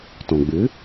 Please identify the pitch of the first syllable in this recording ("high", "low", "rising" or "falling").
low